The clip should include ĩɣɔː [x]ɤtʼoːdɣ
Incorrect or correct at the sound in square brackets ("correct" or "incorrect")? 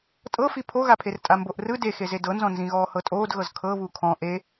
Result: incorrect